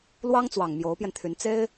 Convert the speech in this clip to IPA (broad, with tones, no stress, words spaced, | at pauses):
lwɑ˥ŋt͡swɑ˨˩ŋ mjo˧˥ʊ̯pjɛ˧nt̪ʰy˧˥n t͡se˥ɪ̯